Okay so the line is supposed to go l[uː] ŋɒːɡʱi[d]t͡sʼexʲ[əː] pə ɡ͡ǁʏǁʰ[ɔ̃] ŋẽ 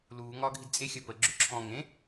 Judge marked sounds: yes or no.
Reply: yes, yes, yes, yes

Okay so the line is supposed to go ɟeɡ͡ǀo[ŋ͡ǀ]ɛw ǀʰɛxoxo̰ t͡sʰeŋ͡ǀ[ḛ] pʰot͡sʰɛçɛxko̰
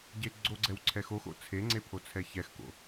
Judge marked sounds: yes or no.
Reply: no, no

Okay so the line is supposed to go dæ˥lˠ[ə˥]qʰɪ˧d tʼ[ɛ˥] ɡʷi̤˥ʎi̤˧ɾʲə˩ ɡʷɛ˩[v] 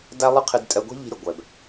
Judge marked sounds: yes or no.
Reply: no, no, no

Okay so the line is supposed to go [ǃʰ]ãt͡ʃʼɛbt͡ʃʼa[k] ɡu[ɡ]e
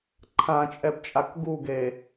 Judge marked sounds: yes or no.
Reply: yes, yes, yes

